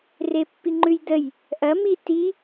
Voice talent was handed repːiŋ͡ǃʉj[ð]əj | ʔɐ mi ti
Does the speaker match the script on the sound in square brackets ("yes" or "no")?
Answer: no